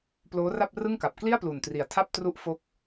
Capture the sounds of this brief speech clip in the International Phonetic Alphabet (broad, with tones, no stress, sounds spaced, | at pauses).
p l oː˦˥ r a˥˩ p̚ r ɯ˥˩ ŋ k a˨˩ p̚ k l i˥˩ a̯ p l u˨˩ n t r i˨˩ a̯ tʰ a˥˩ p̚ t r u˥˩ ʔ f o˥˩ k̚